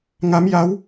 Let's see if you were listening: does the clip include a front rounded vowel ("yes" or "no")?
no